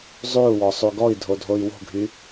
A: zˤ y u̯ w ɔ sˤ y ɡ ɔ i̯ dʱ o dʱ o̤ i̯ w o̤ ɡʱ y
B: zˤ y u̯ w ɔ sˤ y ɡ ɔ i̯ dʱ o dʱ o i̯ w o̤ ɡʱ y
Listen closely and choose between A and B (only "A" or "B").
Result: B